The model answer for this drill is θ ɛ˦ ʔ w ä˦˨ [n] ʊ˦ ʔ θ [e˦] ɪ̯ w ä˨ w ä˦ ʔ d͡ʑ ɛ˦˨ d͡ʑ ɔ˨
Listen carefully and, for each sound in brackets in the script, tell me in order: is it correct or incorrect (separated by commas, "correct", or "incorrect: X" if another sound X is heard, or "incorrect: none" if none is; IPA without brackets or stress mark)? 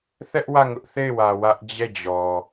incorrect: ŋ, incorrect: e˦˨